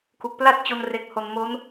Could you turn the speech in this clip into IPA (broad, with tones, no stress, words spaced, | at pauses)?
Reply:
ku˨˩k̚pla˥˩t̚t͡ɕo˧n re˨˩k̚ho˨˩n mo˦˥n